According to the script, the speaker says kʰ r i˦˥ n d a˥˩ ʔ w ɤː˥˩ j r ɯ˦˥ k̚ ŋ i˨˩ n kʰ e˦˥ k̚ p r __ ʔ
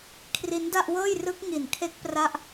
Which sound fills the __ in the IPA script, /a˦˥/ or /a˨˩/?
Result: a˦˥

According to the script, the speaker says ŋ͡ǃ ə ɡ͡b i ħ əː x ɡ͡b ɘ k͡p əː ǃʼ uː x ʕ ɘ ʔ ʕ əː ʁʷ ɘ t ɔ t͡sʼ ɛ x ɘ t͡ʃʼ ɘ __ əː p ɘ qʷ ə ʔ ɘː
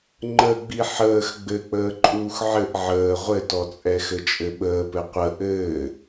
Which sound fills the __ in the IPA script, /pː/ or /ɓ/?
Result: ɓ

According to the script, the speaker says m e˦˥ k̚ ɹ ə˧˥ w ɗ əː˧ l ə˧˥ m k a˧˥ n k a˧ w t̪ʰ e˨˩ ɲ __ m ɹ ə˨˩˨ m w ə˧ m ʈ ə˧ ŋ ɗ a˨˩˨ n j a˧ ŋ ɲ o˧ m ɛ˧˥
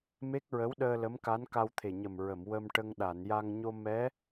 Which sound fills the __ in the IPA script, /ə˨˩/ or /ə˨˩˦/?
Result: ə˨˩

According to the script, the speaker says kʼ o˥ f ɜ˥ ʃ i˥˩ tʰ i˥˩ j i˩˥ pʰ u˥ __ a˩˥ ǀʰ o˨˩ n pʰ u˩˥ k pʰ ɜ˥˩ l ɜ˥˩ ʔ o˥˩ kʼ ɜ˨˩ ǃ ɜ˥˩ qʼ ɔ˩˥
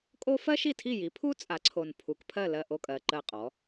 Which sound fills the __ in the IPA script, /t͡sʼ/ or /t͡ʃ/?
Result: t͡sʼ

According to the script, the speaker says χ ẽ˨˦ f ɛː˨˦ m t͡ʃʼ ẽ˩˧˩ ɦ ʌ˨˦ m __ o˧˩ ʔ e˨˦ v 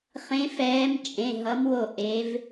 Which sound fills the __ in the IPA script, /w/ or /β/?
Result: w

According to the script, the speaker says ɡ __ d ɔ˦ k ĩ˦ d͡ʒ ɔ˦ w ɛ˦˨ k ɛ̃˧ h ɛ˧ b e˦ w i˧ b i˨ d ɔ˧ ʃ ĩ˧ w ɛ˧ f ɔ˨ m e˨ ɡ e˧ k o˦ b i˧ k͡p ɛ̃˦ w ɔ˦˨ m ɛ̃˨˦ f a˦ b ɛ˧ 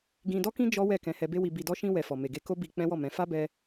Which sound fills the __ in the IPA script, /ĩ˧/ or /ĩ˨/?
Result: ĩ˧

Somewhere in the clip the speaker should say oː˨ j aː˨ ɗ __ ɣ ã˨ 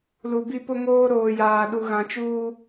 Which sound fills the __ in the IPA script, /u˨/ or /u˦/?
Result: u˨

